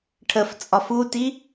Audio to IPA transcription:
ʈʰəf t͡sʼɒfuti

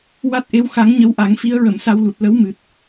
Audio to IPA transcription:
wa˦˥t̚ʔe˧˥wxa˧˥ŋ ɲə˧˥wʔa˨˩˦ŋfi˧˥ə̯ ɹə˨˩˨msa˧wlu˨˩t̚ lə˧˥w mɨ˨˩t̚

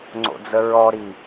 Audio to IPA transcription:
ŋ͡ǀo̰d͡zəɹɔɾi

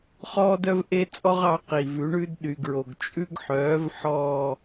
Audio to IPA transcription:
χɔː˦dœ˦v ʔe˦t͡sʼɔ˦ʁɑ˩˥ qi˩vʉ˩˥ɳʉ˦d ɗy˩ɡɹo˩ɡ t͡ʃʼʉ˦ɡħœː˩˥v ħɔː˦˨

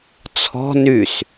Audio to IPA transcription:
t͡sʰɔ̤ nys

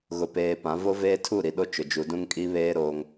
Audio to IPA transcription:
ɣʊ˨peː˨pã˨˦vo˦ veː˦tʰu˦˨ɾi˨ɗo˦ t͡ʃʊ˨ d͡ʒu˨dũ˦ŋkʼi˦βeː˦ ɾoː˦ŋ

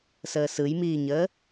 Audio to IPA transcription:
səːsɯjmiːɲəː

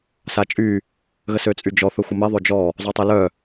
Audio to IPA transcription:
sat͡ʃʼy | ɣəsøt͡sʼyd͡ʒɔ θəxʷəmɛ ðˤød͡ʒɔ | zˤotˤœlœ

